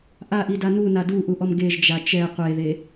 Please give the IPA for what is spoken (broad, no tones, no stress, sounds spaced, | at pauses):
ʔ a ʔ i d a n u n a d u ʔ u ʔ ɔ m ɡ e ʒ d͡ʒ a t͡ʃ ɛ qʷ e ð e